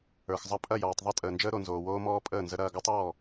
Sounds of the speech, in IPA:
ə˞˨xzˤɐ˧ pʼɐ˦˨jɔː˨tˤðˤɐ˦ tʼəː˨nd͡ʒəː˦ɾo˨nzoː˨ woː˦mɔː˦pʼəː˦˨nzə˦ ɾɐː˧ɡɔ˦tˤ ɔː˦˨

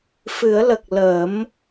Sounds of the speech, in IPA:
fɨ˨˩˦ə̯lə˨˩k̚ lə˨˩˦m

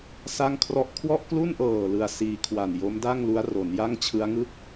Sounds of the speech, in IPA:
sa˥˩ŋkʰrɔ˥˩ʔ kʰwɔ˥˩ʔklu˥˩nʔɤː˨˩ lɯ˧a̯siː˧kʰwa˨˩n jo˦˥mda˥˩ŋlu˦˥a̯ ro˩˦nja˥˩ŋt͡ɕʰɯ˦˥a̯ŋɯ˥˩k̚

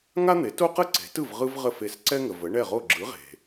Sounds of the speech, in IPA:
ŋa˥n̪e˩˥ to˥qə˥ǀe̤˩˥tɯ˥˩v ʁɯ˥vʁə˥˩fe˧s ǀɛ˥ŋə˩ və˩˥ɳɛ˥˩ʁo˥˩ ɡ͡ǁɯ˩˥ʁe̤˩

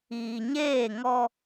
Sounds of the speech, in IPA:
iː˨ɲeː˦˨ŋɔ˦

